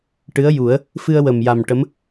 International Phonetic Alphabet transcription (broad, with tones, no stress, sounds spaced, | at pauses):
ʈ ɨ˧˥ ə̯ j u˨˩˦ ə̯ | f ɨ˧ ə̯ w ə˨˩ m j a˨˩ m ʈ ə˧˥ m